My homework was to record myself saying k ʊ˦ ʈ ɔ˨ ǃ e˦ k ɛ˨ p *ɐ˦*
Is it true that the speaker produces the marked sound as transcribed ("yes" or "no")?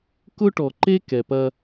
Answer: yes